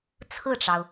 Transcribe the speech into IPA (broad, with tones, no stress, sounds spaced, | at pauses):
t͡sʰ ɹ̩˥˩ ʈ͡ʂ ɑ˩ ʊ̯